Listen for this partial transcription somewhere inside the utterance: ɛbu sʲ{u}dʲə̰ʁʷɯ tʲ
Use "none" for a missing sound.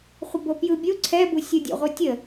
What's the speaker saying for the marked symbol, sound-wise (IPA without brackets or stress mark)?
ɯ